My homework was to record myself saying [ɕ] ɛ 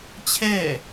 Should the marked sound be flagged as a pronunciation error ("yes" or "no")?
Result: yes